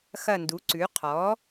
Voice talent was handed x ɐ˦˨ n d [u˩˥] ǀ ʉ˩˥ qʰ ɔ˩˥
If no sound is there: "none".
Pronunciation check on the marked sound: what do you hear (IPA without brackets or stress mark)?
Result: u˩˥